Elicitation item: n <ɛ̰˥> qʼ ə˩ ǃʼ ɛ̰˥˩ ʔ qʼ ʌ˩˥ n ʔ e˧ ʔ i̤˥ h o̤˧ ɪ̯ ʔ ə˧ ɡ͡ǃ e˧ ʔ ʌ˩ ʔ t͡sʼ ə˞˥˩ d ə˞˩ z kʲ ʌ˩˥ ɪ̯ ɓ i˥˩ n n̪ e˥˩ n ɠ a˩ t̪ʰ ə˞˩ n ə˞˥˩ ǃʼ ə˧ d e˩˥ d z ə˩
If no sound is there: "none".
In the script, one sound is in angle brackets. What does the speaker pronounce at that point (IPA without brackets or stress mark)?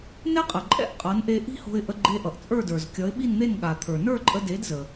ɛ˥